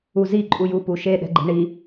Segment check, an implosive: present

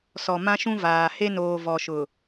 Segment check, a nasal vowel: present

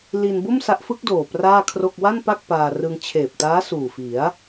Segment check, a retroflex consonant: absent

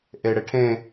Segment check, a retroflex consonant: present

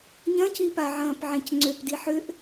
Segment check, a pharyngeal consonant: present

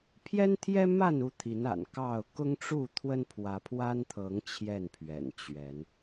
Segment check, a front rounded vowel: absent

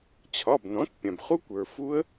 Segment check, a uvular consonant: present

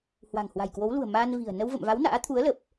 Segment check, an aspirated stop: present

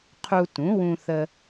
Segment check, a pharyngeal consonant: absent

